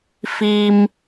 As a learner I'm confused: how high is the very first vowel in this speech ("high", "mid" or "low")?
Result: high